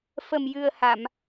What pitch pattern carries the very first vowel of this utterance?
low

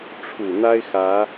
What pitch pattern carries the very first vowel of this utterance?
low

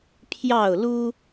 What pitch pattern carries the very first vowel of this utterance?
falling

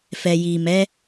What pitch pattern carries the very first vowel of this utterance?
low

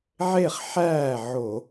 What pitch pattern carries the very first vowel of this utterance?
falling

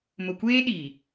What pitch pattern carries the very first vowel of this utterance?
low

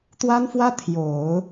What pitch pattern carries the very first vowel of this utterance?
high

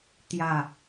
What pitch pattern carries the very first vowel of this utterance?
low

